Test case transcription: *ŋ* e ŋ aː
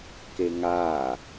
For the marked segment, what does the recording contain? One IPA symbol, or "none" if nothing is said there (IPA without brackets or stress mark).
k